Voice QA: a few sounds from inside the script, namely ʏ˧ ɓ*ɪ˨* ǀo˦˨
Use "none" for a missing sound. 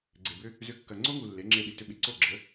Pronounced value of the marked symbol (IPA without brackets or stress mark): ɪ˨